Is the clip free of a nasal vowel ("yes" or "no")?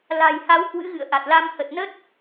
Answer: yes